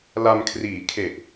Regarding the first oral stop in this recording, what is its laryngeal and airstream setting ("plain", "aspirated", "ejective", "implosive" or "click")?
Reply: aspirated